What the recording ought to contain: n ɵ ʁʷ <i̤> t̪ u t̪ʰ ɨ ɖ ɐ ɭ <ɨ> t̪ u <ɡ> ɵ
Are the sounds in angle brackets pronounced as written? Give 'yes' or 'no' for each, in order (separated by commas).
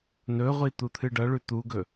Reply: no, no, yes